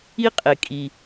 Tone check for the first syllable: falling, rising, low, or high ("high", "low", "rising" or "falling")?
high